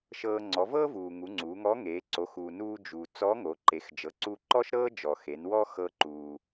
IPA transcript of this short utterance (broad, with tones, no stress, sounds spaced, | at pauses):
ʃ ɤː˧ ŋ͡ǀ ɔ˩˧ v ɤː˥ v uː˩ ŋ u˩˧ ŋ͡ǀ uː˩˧ ŋ ɔ˧˥ ŋ eː˩˧ ǀ o˩˧ x uː˩ n uː˧ d͡ʒ uː˩ t͡s ɔ˧˥ ŋ o˩˧ ǃ e˩˧ x d͡ʒ ɤ˩˧ ǀ u˧ ǃ ɔ˥ ʃ ɾ ɤː˥ d͡ʒ ɔ˩ x e˩˧ n w ɔ˥ x ɤ˧ ǃ uː˩